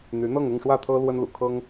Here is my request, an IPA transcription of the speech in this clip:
n̪ y˧˥ n̪ ɤ˥˧ ŋ ʊ˥˧ ŋ ʂ w ä˥˩ t̪ʰ ɤ˥ l w ə˥ n l ṵ˨˩ kʰ ɤ˥ ŋ

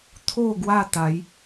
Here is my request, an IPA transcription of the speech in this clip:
t̪ʰ o˥˧ ɡ w a˥˧ t̪ a˨˦ j

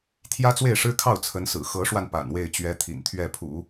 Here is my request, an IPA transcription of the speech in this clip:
t̪ʰ j ä˥ t͡s w e˥˩ ɪ̯ ʂ ɻ̩˥ kʰ ɑ˥˩ ʊ̯ t͡sʰ ə˧˥ n s ɹ̩˨˩ x ɤ˧˥ ʂ w a˧ n p a̰˨˩ n w e˥˩ ɪ̯ t͡ɕ ɥ ɛ˥ t̪ʰ ḭ˨˩ n t̪ʰ ɥ ɛ˥˩ pʰ ṵ˨˩˦

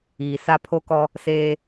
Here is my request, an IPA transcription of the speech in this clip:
iː˨ s a˦ pʰ o˦ k ɔ˦ | s eː˦

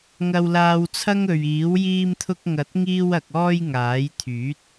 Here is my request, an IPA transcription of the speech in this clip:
ŋ ɐ˧ w l aː˧ w t͡sʰ ɐ˥ ŋ ɵ˨ ɥ iː˨˥ w j iː˧ m t̪ʰ ʊ˧ k̚ ŋ ɐ˨˥ t̚ ŋ iː˧ w ɐ˨ k̚ ɔː˧ j ŋ aː˨˥ j t̪ʰ yː˨˥ t̚

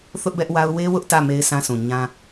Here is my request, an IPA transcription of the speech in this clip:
θ ʊ˦ ʔ b ɛ˦ ʔ w a˦ ʊ̯ w e˦ w ʊ˦ ʔ t ä˦˨ m e˦ ɪ̯ sʰ ã˦ sʰ ũ˨ ɲ ã˦

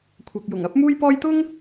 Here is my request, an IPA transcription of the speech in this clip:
kʷʰ ɐ˧ k̚ j ʊ˨˩ ŋ ɐ˥ p̚ m uː˥ j p ɔː˥ j t̪ ʊ˥ ŋ

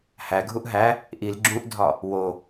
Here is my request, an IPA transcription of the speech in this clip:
h æ ɡʱ u ʔ ɦ æ | ʔ i l ɡ͡ǁ ũ ʔ dʱ ɒ | w o

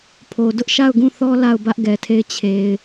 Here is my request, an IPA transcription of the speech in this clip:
pʰ o˨ d ʊ˦ ʔ ʃ a˦˨ ʊ̯ ɡ ũ˦˨ θ ɔ˦ l a˦˨ ʊ̯ b ä˦ ʔ ɡ ɛ˨ tʰ e˦˨ ɪ̯ t͡ɕʰ e˨ ɪ̯

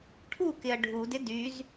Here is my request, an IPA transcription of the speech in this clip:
ʈʰ u k ɪ ɐ̯ ɖʱ u d ɪ d y z

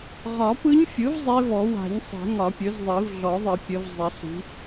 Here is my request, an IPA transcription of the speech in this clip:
ʁ ɒ˨˩˦ p ɯ˧˥ ɲ fʲ ɯ˩˥ v zˤ e˧˥ v ɔ˨˩˦ w a̤˨˩˦ ɲ sˤ e̤˨˩˦ ŋ ɒ˨˩˦ pʲ ɵ˩˥ z ðˤ i˨˩˦ v ɮ ɔ˨˩˦ ðˤ ɪ˨˩˦ pʲ ə˩˥ v zˤ ɪ˨˩˦ ɬ i̤˩˥

